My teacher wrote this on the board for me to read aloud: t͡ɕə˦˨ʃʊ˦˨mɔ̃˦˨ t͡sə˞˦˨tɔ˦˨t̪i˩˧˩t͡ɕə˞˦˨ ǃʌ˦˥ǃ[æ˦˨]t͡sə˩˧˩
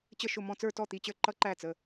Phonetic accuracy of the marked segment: correct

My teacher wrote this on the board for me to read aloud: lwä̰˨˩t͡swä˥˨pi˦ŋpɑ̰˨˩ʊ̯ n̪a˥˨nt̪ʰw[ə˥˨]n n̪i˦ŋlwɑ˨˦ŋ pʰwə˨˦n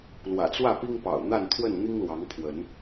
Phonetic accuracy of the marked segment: correct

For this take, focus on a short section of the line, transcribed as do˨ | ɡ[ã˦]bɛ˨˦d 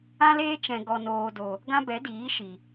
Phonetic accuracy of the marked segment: correct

